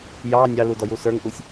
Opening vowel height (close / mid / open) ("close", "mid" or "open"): open